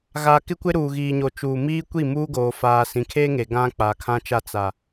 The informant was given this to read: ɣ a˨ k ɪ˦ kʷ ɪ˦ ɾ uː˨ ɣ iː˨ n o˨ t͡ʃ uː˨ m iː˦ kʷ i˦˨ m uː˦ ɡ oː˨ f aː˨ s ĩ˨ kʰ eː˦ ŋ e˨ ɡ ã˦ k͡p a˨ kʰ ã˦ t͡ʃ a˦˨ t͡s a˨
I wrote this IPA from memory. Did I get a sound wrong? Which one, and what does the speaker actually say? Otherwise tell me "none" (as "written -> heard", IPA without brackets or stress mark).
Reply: n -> ɲ